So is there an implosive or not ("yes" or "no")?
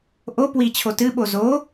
yes